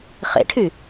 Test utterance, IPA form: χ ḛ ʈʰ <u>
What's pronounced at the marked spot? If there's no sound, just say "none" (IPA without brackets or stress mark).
y